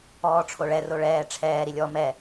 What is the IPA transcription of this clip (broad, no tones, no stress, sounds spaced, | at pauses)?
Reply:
ɔː ʈ͡ʂʰ o ɭ ɛ r o ɭ ɛː ʈ͡ʂʰ ɛː ɾ i lʲ ɔ m ɛ